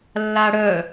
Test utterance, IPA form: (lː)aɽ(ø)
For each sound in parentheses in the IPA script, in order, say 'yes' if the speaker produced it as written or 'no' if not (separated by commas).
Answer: yes, no